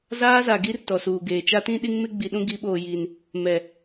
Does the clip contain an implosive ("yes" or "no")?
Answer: yes